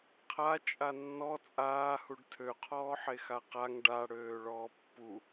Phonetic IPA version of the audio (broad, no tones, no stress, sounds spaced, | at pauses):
qʰ a t͡ʃʼ a nː ɔ t͡sʼ aː h u ɖ tʰ ø qʰ ɔː ħ e x a q a ŋ ɖ a ɽ øː ɭ ɔː pː u